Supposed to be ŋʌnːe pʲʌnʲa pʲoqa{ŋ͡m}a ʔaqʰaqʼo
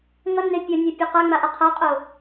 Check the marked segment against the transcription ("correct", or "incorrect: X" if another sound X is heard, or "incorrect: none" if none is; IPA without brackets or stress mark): correct